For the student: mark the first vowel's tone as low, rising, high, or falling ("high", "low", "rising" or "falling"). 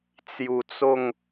low